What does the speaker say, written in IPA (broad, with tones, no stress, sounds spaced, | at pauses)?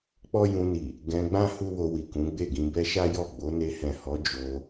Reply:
k͡p ɔ˦ j ũ˧ n i˨ | ɡ ɛ̃˧ ɡ͡b ã˦ h u˦ w o˧ w i˨ k ũ˨˦ ɡ͡b e˦˨ ɡ ĩ˧ b ɛ˦ ʃ a˦ j ɔ˦˨ ɡ͡b o˨˦ n e˧ h ɛ̃˨ h ɔ˨˦ d͡ʒ o˧